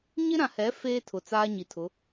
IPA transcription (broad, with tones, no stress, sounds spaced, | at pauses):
ɲ ɪ˦ ɾ ã˨ h ɛ˨˦ f eː˦ tʰ ʊ˨ t͡s aː˦ ɲ i˨ tʰ ʊ˨˦